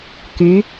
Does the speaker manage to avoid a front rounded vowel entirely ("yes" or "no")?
no